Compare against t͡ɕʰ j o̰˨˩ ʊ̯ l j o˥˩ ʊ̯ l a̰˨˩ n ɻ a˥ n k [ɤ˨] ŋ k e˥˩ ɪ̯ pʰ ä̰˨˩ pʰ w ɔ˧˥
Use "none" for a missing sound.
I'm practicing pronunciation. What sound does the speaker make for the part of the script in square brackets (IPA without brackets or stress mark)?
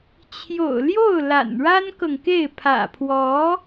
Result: ɤ˨